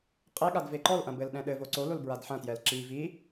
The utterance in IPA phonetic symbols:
qʼ e ɠ a d v e ǃ ɔ l ʔ ɐ̃ b ɘ l ɗ ɛ̃ ɗ ɘ v o ǀ o l o l b ɹ a d ħ ɐ̃ t j ɛ l ǁ i v i

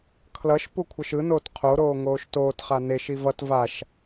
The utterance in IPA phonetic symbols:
kʰ l ʌ ʃ p u kʷʰ ʌ ʃ ɯ n oː t qʰ o ɾ oː ŋ oː ʃ t oː t χ a n e ʃ i v ʌ t v a ʃ

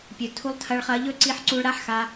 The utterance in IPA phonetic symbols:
pʲ ɵ˨ tʰ u˧ lˠ tʰ ɐ˧ ɭ χ ɐ˧ ʎ ɵ˦ ǀ i˧ ħ ǀ u˧ ɭ ɾ a˦ ħ x a˧

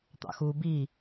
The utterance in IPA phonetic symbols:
t̪ ɑ̰ x u b i

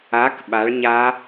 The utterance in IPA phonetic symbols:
a k ɓ a ɭ ɲ a

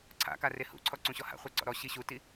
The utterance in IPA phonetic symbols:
ǀʰ a̰ k a r e h ṵ ǀʰ ɔ ǀ ũ ɕ ɔ h a̰ χʷ ɛ ǀ ɔ̰ ɾ ɔ ɕ i ɕ u t i

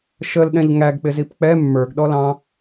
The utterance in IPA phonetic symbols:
ʃ ə l ɗ ɛ̃ ʎ ŋ æ ɡ k͡p ɪ z i p k͡p ɛ mː ə˞ ɡ ɗ ɔ l ɑ̃

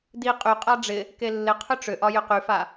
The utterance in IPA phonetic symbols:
d i qʼ y qʼ a ɖ͡ʐ ɪ | k e lː ɪ qʰ ʏ ʈ͡ʂ ʏ ʔ ɒ j ʏ q y f a

